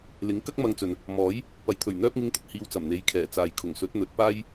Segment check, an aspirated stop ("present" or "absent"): present